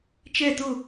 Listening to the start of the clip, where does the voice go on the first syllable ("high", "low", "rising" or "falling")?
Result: falling